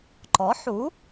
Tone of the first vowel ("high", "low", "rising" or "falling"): rising